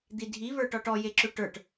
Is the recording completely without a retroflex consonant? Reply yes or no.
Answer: no